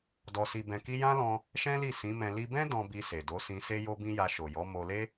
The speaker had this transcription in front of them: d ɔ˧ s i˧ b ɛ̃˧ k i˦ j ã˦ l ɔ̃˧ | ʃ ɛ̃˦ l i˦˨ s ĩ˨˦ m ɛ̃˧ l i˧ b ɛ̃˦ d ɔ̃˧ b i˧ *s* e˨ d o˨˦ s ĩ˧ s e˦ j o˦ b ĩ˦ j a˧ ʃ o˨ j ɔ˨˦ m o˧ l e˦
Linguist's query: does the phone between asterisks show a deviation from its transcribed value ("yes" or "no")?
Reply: no